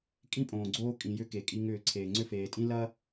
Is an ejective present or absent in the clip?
present